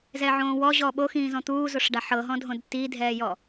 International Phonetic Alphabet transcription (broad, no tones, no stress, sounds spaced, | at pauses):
z ɛ ʕ õː w ɔ ʑ ɔ ɓ o x ĩː z ɔ̃ t̪ uː z o ʂ ɖ a ħ ɤ ɦ ɔ̃ dʱ õ d t i dʱ ɛː j ɔ